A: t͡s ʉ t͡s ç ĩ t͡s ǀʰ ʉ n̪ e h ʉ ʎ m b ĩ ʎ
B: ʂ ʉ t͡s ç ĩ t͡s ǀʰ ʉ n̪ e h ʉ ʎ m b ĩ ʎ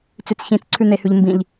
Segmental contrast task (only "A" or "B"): A